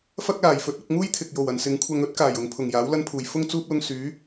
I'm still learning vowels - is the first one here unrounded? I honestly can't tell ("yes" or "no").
yes